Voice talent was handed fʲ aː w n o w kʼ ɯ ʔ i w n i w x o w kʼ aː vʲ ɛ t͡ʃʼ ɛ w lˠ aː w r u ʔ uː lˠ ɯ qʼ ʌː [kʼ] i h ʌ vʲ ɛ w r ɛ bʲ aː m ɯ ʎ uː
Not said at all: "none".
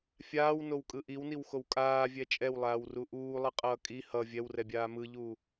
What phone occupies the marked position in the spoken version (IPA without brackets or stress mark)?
kʼ